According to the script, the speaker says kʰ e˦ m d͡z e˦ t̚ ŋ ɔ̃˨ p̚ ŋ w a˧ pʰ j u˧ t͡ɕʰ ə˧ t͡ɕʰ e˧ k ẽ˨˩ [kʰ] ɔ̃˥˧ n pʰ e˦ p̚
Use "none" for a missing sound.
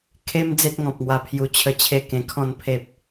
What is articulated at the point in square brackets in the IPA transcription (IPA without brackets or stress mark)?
kʰ